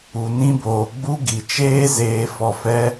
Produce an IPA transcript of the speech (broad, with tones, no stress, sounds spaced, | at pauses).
u˨ n ĩ˧ b oː˨ ɡ͡b u˧ ɡ i˨ t͡ʃ eː˦ z eː˧ f ɔ˧ f ɛ˦